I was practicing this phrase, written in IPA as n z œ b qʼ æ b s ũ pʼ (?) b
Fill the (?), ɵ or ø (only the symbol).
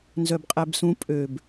ø